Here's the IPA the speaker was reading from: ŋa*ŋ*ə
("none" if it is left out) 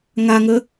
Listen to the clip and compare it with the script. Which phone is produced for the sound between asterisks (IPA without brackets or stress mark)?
ŋ